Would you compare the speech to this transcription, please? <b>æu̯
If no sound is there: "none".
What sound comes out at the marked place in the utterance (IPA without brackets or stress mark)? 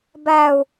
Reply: b